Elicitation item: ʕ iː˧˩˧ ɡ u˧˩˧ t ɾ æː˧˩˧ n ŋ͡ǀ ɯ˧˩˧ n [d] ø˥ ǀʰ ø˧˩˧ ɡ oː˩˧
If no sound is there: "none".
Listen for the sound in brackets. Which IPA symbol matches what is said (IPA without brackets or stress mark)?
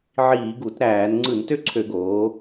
t